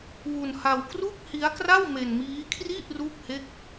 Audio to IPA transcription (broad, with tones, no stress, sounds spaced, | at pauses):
w u˧ n h a˧ w k r u˥˩ k̚ h i˦˥ a̯ k r a˥˩ w m e˧ n m iː˦˥ kʰ r i˥˩ ʔ r u˥˩ k̚ h e˥˩ k̚